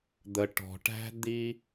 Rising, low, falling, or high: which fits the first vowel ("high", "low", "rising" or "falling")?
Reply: low